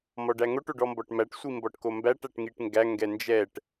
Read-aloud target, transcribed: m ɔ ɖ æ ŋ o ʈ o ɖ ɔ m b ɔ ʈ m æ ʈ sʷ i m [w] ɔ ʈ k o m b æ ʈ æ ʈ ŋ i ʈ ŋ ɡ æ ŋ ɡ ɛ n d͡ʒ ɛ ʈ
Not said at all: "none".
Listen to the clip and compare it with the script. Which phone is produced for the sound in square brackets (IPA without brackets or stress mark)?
b